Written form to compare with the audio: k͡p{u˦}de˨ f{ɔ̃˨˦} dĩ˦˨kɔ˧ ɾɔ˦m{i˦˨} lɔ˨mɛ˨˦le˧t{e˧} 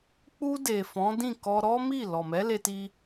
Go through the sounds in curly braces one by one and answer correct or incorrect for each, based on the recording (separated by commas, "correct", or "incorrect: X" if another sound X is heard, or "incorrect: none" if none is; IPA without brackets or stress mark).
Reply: incorrect: u˧, correct, correct, incorrect: i˧